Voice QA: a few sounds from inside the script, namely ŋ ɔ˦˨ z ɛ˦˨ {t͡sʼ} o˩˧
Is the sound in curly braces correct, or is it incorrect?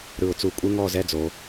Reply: incorrect